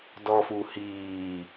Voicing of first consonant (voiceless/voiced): voiced